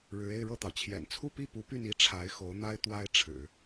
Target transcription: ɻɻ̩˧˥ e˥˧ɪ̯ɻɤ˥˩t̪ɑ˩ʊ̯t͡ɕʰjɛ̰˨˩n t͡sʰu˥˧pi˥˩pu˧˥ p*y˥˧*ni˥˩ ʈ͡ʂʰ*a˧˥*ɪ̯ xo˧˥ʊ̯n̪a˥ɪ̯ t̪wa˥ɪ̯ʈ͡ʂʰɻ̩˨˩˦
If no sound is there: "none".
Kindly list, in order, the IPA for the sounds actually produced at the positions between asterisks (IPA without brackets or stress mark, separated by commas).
y˥˧, a˧˥